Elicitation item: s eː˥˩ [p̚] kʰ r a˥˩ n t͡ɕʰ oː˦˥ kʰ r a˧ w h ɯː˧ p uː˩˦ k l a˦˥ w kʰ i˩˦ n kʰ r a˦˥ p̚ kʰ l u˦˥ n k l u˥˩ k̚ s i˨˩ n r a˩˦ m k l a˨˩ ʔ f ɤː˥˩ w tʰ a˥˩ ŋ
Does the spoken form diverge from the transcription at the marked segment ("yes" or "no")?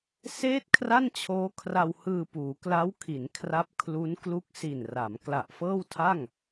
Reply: yes